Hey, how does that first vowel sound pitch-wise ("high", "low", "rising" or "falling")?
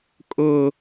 high